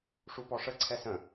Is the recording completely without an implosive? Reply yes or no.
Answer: yes